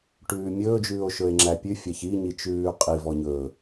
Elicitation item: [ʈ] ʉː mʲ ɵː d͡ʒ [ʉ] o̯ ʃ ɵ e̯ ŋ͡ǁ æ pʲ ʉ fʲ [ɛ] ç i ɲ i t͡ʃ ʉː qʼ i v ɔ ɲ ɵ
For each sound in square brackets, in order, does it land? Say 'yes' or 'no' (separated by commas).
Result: yes, no, no